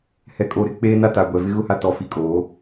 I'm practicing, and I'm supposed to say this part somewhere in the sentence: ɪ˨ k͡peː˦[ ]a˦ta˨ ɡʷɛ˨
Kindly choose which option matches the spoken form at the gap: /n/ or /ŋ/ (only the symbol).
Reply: n